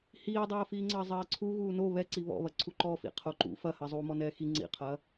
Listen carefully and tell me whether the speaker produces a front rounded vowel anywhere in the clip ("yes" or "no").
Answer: no